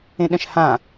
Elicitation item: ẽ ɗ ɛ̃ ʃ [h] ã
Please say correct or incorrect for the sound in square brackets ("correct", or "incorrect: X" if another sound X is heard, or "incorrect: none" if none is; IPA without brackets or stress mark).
correct